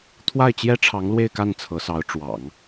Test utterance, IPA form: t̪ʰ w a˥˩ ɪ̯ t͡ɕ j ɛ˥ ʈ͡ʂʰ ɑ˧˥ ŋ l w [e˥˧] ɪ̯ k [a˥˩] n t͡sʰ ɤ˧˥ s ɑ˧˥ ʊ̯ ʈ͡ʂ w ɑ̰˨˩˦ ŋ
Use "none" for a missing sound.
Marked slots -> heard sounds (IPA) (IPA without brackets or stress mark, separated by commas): e˥˧, a˥˩